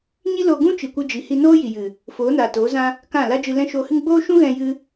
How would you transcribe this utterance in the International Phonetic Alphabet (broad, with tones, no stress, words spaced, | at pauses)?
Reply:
ɲi˦ lo˧ ɡũ˦ t͡ʃi˨kʷɨ˧d͡ʒi˨ hi˧noː˦ ji˨jɨ˨ | foː˨˦naː˨toː˨˦zã˦ | kã˦˨ la˦d͡ʒɨ˧lɛ̃˦ ʃoː˧hɨ˦ŋ ɡ͡boː˦ʃũ˦ɣɛ̃˧ jɨ˦